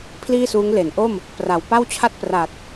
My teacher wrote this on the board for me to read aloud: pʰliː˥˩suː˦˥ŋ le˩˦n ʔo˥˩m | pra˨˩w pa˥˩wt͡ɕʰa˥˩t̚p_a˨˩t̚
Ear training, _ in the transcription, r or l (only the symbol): r